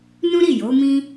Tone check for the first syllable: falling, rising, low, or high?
high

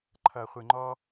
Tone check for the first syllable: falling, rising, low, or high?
low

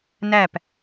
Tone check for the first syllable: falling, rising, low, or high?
falling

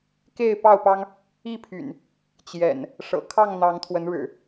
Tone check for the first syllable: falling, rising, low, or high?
falling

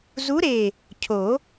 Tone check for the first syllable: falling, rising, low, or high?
rising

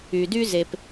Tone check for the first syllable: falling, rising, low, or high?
low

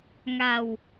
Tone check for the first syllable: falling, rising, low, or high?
low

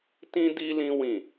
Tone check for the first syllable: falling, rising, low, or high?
high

